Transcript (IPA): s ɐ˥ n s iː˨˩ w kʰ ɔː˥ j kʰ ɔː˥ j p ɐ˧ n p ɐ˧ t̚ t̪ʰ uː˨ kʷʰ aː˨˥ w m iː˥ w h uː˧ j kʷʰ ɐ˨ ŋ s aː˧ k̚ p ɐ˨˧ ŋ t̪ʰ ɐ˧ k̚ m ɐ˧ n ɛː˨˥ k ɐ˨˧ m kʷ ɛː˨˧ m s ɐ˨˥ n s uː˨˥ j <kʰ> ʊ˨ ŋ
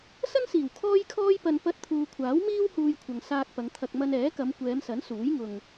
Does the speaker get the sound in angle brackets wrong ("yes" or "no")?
yes